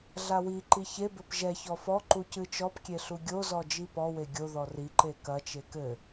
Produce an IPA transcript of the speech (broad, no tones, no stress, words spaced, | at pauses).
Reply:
ɮawiǃi çebɘp ʒɛçɔ fɔǃu cɨt͡ʃɔpkʲe ɬuɡʲozɔ d͡ʒipɔwe ɡʲo ðɔriǃe kɐt͡ʃe kɘ